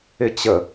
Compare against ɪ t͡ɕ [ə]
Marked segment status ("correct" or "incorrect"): correct